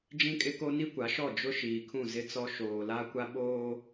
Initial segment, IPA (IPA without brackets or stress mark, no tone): d͡ʒ